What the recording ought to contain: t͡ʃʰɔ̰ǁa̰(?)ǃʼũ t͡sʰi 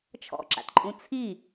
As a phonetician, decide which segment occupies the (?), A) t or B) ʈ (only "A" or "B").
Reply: A